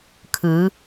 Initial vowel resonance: oral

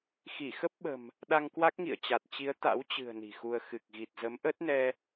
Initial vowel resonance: oral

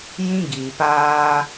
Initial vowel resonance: nasal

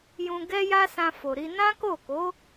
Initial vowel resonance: nasal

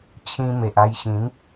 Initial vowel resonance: nasal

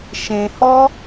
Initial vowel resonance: nasal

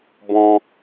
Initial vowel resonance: nasal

